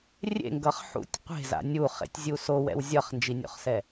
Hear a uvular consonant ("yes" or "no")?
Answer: yes